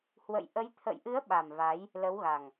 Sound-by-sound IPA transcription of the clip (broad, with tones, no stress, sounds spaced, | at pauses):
h w ə̰˧˨ j ʔ ə˨˦ j t̪ʰ ə̰˧˨ j ʔ ɨ˨˦ ə̯ ɓ a˨˩ m v a˨˦ j | l ə˨˦ w ɣ a˨˩ ŋ